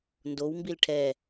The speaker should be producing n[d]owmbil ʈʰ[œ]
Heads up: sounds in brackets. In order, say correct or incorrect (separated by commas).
correct, incorrect